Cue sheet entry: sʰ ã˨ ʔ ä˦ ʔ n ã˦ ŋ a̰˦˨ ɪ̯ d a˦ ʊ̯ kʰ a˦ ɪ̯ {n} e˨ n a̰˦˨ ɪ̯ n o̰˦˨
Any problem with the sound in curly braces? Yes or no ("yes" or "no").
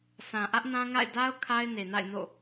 no